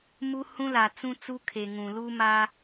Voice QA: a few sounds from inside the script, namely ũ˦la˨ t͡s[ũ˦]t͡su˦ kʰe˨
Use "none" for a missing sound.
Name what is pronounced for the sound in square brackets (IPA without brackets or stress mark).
ũ˦